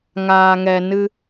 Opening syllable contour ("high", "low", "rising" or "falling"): low